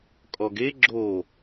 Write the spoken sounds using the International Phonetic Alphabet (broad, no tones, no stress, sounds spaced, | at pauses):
kʼ ɔ ɡ e ɡ͡ǁ o